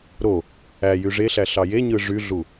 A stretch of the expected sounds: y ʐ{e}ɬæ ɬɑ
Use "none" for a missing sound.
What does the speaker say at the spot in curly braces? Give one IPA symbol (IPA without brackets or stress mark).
e